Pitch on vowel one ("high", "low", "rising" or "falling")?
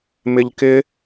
high